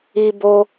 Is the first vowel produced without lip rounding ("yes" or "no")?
yes